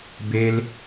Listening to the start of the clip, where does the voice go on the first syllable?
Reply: high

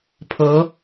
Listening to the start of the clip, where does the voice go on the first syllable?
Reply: rising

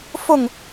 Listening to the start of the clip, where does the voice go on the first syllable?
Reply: falling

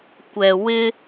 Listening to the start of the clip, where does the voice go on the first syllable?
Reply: low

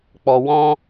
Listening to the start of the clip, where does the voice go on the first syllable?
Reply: low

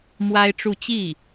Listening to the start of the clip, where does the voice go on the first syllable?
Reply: high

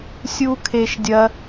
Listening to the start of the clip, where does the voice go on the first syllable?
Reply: high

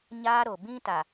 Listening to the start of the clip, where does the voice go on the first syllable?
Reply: high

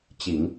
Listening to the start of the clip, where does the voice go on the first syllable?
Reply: low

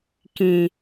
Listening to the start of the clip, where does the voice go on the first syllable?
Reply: low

